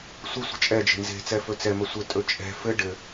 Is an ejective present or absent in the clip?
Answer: present